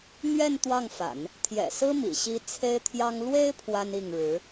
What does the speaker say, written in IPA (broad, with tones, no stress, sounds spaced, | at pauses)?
n̪ ɥ ɛ˥˧ n t̪ w ɑ˥˩ ŋ f a̰˨˩˦ n | t̪ʰ j ɛ̰˨˩ s ɹ̩˥ m ḭ˨˩ ɕ i˥ t͡sʰ e˥ ɪ̯ t̪ʰ j ɑ˥ ŋ l w e˥ ɪ̯ pʰ w a˥ n i˥˩ ŋ ɻ ɻ̩˧˥